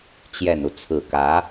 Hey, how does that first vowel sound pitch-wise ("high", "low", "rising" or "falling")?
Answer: low